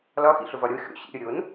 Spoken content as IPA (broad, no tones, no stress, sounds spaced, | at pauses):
l ɒ x ḭ ɬ ʊ v ɒ ɾʲ o xʲ o̰ ɕ ḭ ɾʲ ʊ ɾʲ o n